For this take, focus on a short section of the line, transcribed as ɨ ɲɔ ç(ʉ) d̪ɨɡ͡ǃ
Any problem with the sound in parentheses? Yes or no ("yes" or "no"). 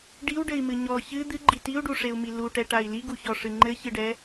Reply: yes